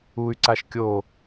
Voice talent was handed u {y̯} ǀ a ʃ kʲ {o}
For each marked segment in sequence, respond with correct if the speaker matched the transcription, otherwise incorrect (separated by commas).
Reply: correct, correct